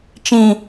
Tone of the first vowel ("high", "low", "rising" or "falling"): high